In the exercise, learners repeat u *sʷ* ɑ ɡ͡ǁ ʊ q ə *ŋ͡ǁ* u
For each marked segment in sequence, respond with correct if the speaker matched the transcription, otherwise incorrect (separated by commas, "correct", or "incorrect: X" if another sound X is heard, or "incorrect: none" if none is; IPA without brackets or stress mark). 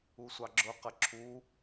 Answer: correct, incorrect: ǁʰ